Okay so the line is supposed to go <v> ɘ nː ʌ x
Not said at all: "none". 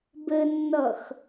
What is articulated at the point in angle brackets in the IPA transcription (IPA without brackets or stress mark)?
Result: b